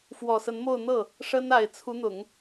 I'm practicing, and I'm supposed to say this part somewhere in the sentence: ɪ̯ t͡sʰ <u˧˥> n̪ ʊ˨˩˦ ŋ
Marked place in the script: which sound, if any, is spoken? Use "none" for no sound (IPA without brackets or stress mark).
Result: u˧˥